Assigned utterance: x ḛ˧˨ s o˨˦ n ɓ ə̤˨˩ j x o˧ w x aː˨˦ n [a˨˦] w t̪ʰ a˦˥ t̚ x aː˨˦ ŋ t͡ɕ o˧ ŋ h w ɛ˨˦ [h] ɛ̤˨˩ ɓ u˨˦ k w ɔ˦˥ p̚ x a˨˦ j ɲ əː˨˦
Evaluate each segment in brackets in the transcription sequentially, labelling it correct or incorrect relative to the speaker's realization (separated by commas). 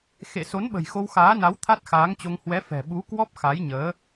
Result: correct, incorrect